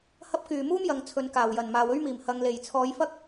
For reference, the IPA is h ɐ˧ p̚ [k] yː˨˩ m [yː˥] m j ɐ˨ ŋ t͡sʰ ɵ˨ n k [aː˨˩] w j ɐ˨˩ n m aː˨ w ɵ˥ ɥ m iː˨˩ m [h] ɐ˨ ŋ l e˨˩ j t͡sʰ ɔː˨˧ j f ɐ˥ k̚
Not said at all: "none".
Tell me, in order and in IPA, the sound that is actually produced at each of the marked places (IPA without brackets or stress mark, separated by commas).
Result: k, uː˥, aː˨˩, h